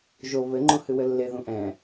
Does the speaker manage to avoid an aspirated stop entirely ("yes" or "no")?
yes